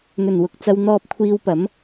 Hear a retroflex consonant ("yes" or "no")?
no